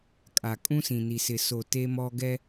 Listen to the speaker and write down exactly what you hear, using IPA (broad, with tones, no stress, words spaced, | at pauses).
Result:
kʼa˨ kʼũ˦sĩ˨ni˨sɪ˨ so˨ te˦mɔ˦ ɡɛ˦